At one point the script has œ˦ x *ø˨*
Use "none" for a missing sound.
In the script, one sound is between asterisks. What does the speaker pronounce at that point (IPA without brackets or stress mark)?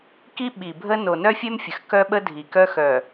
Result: œ˨